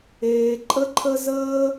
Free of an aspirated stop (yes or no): no